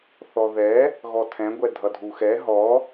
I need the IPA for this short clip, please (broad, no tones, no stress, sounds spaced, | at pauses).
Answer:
θ ɔ ð ɛ | ɣ ɔ tʰ ɛ̃ ɡʷ ɛ dʱ ʌ dʱ u x ɛ ɦ ɔ